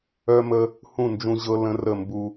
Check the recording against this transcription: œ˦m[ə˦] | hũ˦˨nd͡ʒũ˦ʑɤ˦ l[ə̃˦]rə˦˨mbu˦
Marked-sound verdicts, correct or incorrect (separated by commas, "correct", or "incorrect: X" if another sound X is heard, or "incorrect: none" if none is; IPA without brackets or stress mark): correct, correct